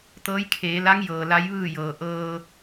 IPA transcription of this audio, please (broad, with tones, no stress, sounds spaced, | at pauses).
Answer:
t̪ ɤː˧˥ j kʰ eː˩˧ l a˧˥ ŋ j ɤː˩ l a˧˥ j ʋ ɯː˥˨ j ɤː˩ ʔ ɤː˧